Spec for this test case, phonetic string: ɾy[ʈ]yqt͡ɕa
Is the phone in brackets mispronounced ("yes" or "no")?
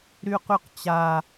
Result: yes